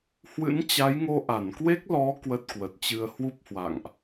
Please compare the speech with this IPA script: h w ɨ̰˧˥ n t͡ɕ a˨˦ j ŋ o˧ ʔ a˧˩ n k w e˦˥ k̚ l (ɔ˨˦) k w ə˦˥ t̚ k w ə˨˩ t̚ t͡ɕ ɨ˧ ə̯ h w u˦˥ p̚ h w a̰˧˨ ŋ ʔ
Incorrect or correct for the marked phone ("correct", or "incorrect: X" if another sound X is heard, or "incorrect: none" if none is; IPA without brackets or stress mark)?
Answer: correct